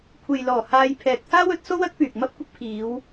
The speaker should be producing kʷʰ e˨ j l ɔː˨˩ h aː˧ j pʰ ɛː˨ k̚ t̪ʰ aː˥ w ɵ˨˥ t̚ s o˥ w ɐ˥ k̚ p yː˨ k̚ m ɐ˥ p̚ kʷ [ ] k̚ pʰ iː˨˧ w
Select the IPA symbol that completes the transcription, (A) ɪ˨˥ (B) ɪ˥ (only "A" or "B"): B